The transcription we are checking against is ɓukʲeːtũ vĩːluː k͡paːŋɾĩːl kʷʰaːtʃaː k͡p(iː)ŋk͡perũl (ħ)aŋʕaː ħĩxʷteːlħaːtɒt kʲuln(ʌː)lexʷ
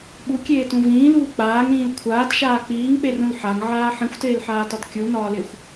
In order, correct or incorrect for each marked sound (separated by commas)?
correct, correct, incorrect